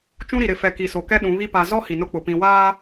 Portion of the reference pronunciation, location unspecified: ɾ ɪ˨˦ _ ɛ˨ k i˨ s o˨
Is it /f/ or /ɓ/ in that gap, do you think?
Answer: f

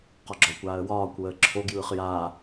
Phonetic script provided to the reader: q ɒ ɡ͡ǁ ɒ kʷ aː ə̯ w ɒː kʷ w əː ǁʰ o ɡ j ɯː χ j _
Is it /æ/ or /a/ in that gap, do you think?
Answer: a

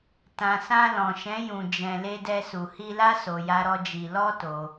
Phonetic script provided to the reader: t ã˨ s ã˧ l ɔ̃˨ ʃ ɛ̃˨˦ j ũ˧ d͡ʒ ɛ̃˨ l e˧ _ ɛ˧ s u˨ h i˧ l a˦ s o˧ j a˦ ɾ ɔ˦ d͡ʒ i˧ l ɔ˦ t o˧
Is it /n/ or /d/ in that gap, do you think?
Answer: d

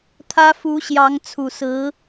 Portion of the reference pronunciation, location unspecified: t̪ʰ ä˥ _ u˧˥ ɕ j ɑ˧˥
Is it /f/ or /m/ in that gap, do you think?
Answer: f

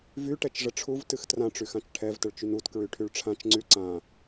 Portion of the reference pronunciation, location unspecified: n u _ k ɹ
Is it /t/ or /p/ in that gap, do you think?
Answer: t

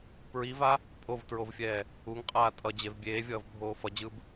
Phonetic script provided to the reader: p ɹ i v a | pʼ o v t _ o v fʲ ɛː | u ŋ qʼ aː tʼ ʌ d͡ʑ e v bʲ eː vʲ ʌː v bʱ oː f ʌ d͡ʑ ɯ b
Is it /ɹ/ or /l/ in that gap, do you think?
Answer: ɹ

